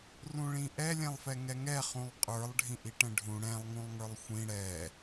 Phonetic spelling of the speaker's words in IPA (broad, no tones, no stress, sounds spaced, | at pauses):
r ũ ɭ ĩ ʔ ɛ lʲ ɛ̃ lˠ f ɛ ŋ ɛ ŋ ɛ χ ũ lˠ qʼ ə˞ lˠ ɖʱ ĩ ʔ i ʈ ɛ̃ ɖʱ ũ ɽ ɛ̃ lˠ ŋ ũ lˠ ŋ ə˞ lˠ xʷ ĩ ɽ ɛ